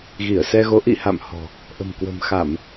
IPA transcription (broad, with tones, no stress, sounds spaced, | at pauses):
ɣ i˧˩ ə̯ s ɛ˧ ɣ o˨˦ ʔ ḭ˧˨ h a̰˧˨ m h ɔ̤˨˩ | ʔ ə̤˨˩ m k w ə̤˨˩ m x a˧˩˨ m